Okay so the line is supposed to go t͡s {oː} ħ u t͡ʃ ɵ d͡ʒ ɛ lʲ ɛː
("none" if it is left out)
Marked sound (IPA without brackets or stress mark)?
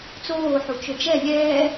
oː